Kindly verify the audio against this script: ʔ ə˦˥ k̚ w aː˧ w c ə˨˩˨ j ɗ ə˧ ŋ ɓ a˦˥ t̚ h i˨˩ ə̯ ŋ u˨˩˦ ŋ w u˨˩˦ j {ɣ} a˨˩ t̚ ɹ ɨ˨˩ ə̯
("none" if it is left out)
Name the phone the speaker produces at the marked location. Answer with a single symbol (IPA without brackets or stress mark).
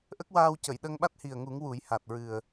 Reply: h